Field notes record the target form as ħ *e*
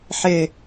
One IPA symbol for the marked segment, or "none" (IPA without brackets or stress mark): e